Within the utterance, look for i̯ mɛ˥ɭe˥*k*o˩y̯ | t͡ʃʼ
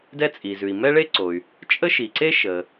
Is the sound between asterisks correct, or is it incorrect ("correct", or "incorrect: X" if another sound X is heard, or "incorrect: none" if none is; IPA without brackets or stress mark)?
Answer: incorrect: ǀ